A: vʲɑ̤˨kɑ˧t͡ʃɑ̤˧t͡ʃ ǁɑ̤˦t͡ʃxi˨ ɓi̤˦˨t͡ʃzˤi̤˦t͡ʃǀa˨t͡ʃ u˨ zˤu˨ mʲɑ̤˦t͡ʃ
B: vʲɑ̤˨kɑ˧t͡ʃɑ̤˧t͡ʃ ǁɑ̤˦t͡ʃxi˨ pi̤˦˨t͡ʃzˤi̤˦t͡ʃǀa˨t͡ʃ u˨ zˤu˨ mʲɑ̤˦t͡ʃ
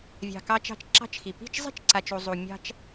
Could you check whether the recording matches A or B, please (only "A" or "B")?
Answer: B